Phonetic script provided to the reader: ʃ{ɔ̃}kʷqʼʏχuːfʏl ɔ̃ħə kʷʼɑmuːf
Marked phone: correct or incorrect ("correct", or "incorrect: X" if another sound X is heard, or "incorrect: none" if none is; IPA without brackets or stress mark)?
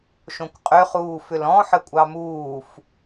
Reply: incorrect: õ